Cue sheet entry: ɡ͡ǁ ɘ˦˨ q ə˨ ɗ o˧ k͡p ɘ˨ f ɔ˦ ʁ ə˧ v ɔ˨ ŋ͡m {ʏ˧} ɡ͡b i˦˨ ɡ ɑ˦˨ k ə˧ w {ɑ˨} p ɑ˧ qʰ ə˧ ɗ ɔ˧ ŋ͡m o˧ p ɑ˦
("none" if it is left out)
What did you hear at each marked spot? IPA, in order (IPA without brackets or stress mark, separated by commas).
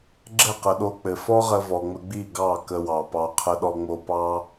ə˧, ɑ˨